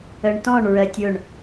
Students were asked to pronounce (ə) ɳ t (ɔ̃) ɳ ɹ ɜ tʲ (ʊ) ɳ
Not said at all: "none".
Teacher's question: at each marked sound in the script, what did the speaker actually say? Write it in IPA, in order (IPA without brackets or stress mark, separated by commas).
ə, ɔ̃, ʊ